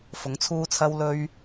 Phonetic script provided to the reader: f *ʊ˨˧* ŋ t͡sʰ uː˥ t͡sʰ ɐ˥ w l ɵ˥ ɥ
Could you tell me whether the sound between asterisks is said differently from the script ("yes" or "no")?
no